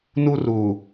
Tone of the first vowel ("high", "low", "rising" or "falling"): high